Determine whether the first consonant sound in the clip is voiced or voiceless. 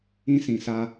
voiceless